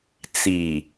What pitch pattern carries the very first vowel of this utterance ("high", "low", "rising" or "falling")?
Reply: low